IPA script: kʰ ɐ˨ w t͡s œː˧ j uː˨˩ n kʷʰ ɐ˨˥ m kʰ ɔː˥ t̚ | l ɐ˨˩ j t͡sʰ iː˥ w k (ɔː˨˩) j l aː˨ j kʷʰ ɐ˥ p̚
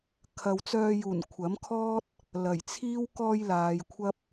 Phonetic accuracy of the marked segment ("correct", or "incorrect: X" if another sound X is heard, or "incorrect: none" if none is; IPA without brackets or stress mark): incorrect: ɔː˧